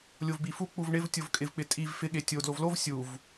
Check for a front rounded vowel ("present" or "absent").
absent